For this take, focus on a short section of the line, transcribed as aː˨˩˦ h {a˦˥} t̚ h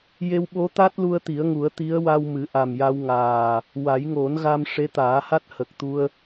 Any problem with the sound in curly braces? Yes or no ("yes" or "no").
no